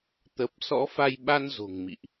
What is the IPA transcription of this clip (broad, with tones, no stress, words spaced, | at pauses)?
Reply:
t̪ə˨˩p̚ sɔ̰˧˥fa˧jɓa˧n zo̤˨˩ŋmḭ˧˨ʔ